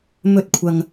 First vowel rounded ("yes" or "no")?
yes